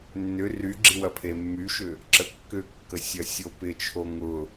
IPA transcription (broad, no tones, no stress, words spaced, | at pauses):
nːʏ ryɡ͡ǁi wɐpʰemːyʃʏ | ǁəkːʏkːə sʲɐsʲopɪt͡ʃʰo ŋʊ